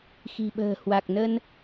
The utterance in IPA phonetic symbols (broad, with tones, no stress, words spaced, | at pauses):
xi̤˨˩ɓə̤ː˨˩ hwa˨˩k̚nə˧n